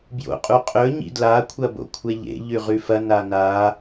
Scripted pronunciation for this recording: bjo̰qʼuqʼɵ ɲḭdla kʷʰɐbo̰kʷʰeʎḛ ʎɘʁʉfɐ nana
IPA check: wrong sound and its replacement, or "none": ɘ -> ʉ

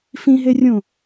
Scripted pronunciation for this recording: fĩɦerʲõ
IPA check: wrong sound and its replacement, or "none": none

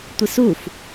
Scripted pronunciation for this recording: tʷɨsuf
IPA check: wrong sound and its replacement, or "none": ɨ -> i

